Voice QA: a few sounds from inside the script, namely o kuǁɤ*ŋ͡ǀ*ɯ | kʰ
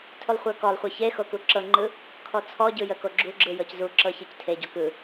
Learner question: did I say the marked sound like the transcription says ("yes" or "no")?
no